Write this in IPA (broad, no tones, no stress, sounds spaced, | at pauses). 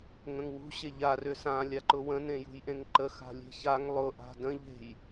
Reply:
ŋ ə̃ ŋ w ṳ ɕ e ʎ a r ʏ s ã lʲ a ǃ ʊ w ə̃ n ẽ j ṳ j ʔ ẽ ŋ ǃ ə x a̤ lʲ e̤ ç a ŋ lˠ ʊ ʔ a̤ d ə̃ ʎ e̤ j